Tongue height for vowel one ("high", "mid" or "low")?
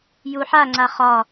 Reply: high